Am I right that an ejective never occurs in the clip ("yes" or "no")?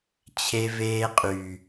no